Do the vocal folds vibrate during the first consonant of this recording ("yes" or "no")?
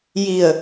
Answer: yes